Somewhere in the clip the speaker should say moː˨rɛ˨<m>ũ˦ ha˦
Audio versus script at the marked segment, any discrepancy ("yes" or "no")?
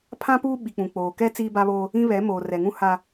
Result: yes